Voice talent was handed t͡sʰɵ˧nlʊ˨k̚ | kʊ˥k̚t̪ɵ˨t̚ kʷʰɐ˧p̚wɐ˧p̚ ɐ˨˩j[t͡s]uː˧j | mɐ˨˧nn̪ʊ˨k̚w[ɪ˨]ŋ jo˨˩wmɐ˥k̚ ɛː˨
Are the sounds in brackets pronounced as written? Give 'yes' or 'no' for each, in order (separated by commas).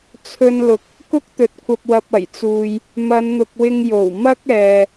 yes, no